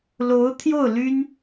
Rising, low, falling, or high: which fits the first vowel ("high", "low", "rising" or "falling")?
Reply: rising